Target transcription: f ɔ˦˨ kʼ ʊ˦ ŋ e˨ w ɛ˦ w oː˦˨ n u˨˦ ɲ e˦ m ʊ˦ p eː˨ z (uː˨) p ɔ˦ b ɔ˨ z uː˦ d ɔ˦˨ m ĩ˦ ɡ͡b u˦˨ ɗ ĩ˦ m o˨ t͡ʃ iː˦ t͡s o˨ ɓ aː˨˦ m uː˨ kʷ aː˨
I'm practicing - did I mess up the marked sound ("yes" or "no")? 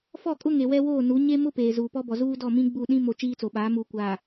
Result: no